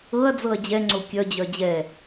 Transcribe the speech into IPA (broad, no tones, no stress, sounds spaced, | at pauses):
ɤ ɐ̯ d͡z ɤ ɐ̯ d͡ʑ ɛ ŋ͡ǀ o kʲ œ d͡ʑ œ d͡ʑ ɛ